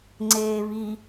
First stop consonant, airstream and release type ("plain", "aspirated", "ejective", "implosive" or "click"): click